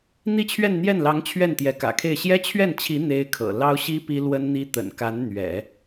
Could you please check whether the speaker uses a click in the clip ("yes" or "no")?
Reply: no